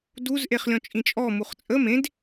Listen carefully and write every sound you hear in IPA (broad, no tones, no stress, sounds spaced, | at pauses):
d u z ʔ e χ lʲ ɔ̃ t͡ʃʼ ĩ t͡ʃʼ ɔ m u χ t͡sʼ ə m ẽ d